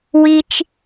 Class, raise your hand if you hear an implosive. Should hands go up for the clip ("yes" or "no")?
no